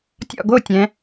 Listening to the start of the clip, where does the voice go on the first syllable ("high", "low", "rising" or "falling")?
falling